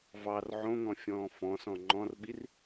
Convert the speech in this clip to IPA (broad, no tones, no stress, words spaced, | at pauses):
vɑr ʕõŋɔ̃fʲɔ̃ː fɔ̃sɔ̃ ŋ͡ǃɔ̃rɓir